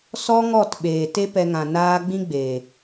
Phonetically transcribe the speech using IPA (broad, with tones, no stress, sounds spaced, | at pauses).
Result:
s ɔ˦ ŋ ɔ˦˨ t ɓ eː˨ t e˦ p ɛ˧ ŋ ã˨ n aː˧ ɡ͡b ĩ˦ ɡ͡b eː˨